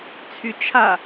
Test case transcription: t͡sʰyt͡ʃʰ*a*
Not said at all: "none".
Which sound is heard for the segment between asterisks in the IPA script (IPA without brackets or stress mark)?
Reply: a